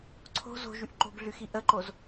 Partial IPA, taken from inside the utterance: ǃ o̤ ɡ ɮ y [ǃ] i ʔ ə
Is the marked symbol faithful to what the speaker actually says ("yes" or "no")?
no